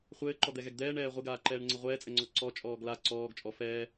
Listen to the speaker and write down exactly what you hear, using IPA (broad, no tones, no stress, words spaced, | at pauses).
χʷɘːǃɔd̪ɛɣɛɡ d̪ɛːɳɛː ʁʷɛɡaːǃɛːɳŋ͡ǀɘ ʁʷɛːt͡sʼɘŋ͡ǀɔ ǀɔt͡ʃʼɔːɡ la ǀɔːɡ t͡ʃʼɔ fɛː